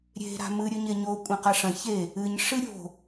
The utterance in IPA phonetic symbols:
ɾʲ e̤ ɾ a̤ m ɨ ɾʲ ɵ ɲ e ɲ o kʷʼ ĩ q a ʂ ɐ̃ ç e | ɨ ɲ ʂ ɨ ɾʲ o̤

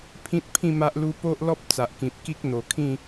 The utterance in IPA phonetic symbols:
pʰ ĩ˦ t̚ pʰ ĩ˥˧ m a˦ ʔ l u˦ p o˦ ʔ l ɔ˦ p̚ t͡s a˨ ʔ k ĩ˨ p̚ k i˦ k̚ n̪ o˨˩ kʰ ĩ˥˧

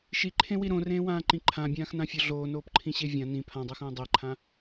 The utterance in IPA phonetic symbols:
ʃ i ǃʰ ẽ w i ɾ õ r ẽː w ãː ǃ ĩ ǃʰ ã bʲ ãː x n ã fʲ o ɮ oː n oː p ǃʰ ĩ ɕ e vʲ ã n ĩ pʰ ã dˤ e x õː dˤ e ǃʰ ã

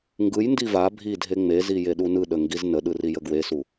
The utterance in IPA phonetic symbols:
ŋ ɡ ɯ j n d i v a bʱ i dʱ e ŋ͡m e z i j e ɗ u n ɯ ɗ ə ŋ ɡ i z n ə ɗ ɯ r i j ə ɡ w e s u

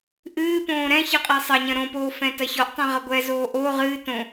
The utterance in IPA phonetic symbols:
ʔ ɨː p õː ɾ ɛ̃ ç ɨ qʼ i sˤ ɐ ɲ ɐ̃ ɾ õ p oː f ɛ̃ t ɐ ç ɔ ʔ tˤ ĩ ʁ ɐ ɡʷ ɛ z oː ʔ o ʁ ɨː t õ

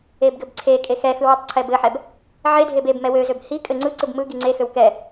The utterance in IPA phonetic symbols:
e b ɡ ɘ b ǀʰ e kʼ e x ɛ x ɯ w y tˤ ǀʰ ɛ b ɘ ħ ɛ b | ʕ e dʱ e b e b m ɛ w ø z ø b h i kʼ ɘ ŋ͡ǀ ɯ ǀ ɯ b m ɯ ɡ i ŋ͡ǀ e x ø w k ɛ

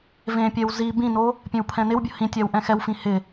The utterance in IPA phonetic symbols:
v ẽ pʲ ɛ w z i b ĩ n o | pʲ ẽ w pʰ ɛ̃ n ɪ w bʲ ʊ h ĩ tʲ a w ʔ ɛ̃ x ɛ w f ĩ h ɪ

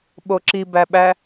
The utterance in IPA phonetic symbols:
ɓ o ǁ i b æ ɓ æ

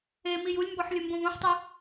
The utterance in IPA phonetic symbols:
e m i j u lʲ m b ɔ ħ lʲ ɘ m b õ v õ ħ tˤ e

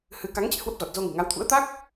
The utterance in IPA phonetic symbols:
h ɨ˨˦ k a˨˦ ŋ t͡ɕ ḛ˧˨ h w ə˦˥ p̚ z ɔ˨˩ t̚ z o˧ ŋ ɨ̤˨˩ ŋ a˨˦ w t̪ʰ ṵ˧˥ ə̯ t̪ a˦˥ k̚

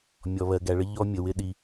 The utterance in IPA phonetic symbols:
mʲ ɔ˨ β ɜ˨ ɡ æ˨ ɭ ə˦ ʎ ɔ˦ mʲ ə˨ w ɪ˦ ɗ i˨

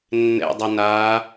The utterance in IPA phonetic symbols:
nː ɛ̰ dˤ ɐ n aː

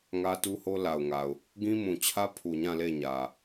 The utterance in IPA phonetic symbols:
ŋ ä˦ t u˦ h o˦ l a˨ ʊ̯ ŋ a˨ ʊ̯ | ɡ ĩ˦ m ũ˨ t͡ɕʰ ä˦ pʰ u˨ ɲ ã˦˨ l e˦˨ ɲ ä˨

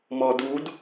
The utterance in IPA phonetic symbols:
m ɔ d u d

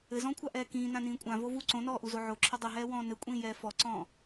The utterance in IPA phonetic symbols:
ɘ z ɔ̃ː kʷʰ a ʔ ɛː k ĩː n ã n ĩː kʷʼ ã v o v u ǀ õ n ɔː ʔ u z o ʕ o ǁʰ ɘ dˤ ɘ ɦ ɛː w ɔ̃ː n ɘ kʷʼ ĩː j ɛː f ɔ ǀ ɔ̃ː

